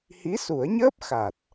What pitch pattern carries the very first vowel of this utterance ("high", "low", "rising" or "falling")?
rising